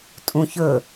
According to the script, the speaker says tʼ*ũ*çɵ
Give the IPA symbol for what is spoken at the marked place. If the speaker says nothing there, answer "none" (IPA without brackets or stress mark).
ũ